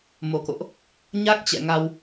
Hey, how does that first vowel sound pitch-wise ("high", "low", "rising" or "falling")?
low